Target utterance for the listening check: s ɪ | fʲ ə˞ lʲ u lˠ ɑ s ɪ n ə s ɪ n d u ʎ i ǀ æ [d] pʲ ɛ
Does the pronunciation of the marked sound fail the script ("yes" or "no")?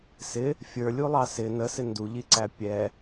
yes